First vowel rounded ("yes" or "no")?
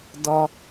yes